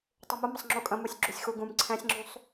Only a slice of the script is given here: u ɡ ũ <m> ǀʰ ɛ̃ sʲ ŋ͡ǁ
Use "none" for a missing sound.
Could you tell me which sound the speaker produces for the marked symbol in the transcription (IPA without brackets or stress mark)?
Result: m